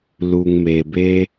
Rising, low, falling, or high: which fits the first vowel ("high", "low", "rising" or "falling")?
low